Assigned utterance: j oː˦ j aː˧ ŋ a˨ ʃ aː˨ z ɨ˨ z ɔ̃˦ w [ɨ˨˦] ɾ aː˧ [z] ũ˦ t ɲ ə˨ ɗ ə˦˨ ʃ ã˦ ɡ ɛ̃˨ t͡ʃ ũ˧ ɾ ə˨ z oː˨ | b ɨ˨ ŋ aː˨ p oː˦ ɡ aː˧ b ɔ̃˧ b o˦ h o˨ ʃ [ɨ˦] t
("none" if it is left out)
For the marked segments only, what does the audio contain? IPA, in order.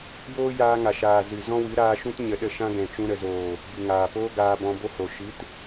ɨ˨˦, ʃ, ɨ˨˦

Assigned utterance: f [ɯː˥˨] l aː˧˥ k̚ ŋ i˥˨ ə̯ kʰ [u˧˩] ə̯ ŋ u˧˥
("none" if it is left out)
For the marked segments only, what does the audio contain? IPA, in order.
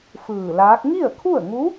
ɯː˧˩, u˥˨

